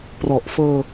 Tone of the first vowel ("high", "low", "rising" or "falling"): low